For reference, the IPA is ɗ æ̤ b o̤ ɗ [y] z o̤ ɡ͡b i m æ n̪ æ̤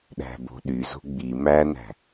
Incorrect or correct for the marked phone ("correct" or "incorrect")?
correct